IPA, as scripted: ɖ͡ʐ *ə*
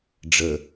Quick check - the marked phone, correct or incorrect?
correct